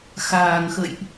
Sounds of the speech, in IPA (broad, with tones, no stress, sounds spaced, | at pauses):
x aː˨˩ ŋ x ə̰˧˨ j ʔ